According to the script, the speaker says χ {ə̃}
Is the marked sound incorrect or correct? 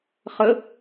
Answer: incorrect